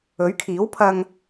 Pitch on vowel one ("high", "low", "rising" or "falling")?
rising